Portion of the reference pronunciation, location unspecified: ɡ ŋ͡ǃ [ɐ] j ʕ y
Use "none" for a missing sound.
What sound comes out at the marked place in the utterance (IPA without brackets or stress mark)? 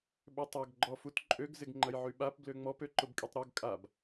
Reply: ɐ